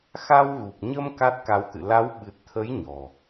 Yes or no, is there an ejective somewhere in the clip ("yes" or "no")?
no